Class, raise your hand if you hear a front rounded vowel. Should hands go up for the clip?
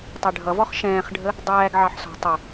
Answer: no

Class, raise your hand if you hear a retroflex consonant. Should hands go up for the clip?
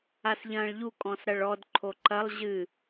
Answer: yes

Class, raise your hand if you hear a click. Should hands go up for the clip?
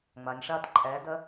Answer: yes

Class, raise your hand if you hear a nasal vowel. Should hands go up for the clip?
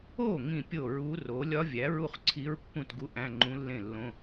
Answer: yes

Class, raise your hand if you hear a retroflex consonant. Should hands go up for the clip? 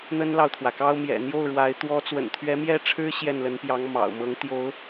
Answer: yes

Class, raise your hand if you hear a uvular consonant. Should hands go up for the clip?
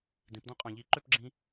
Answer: yes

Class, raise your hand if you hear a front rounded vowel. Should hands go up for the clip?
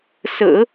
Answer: no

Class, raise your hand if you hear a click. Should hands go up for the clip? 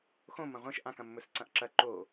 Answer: yes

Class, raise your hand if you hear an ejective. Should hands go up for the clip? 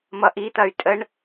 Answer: yes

